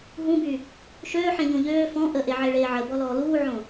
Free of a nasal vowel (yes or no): no